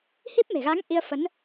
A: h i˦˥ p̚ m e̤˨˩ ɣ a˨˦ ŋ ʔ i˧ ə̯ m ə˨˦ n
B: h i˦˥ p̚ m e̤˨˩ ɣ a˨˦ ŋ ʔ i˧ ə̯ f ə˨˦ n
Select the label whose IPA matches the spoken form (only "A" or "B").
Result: B